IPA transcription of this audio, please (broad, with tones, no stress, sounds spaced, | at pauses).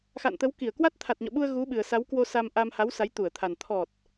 x a̰˧˨ n t̪ ə˨˦ w k i˧˩ ə̯ k w a˦˥ t̚ t̪ʰ a˨˩ t̚ ɲ ɔ̰˧˨ ɓ u˧ ə̯ ɣ u˨˦ ɓ ɨ˨˩ ə̯ s a˨˦ w k w o˧ s a˧ m ʔ a˧ m h a˨˦ w s a˨˦ j t̪ u˧˩ ə̯ t̪ʰ a˨˩ n t̪ʰ ɔ˨˩ t̚